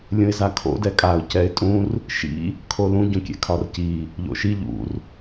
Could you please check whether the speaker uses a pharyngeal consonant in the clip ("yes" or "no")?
no